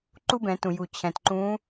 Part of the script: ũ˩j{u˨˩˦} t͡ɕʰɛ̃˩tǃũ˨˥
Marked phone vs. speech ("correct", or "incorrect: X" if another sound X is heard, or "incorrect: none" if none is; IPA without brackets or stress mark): incorrect: u˩